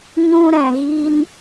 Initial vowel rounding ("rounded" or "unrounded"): rounded